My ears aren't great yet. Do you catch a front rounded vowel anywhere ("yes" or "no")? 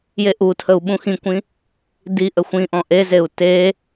no